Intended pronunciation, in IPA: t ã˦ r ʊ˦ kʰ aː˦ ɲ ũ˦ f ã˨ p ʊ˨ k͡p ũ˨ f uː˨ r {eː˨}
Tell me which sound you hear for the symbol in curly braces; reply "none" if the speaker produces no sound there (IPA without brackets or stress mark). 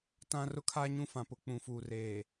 eː˨